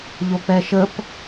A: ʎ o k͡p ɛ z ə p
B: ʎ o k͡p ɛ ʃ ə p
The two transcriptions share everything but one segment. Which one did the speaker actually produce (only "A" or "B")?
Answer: B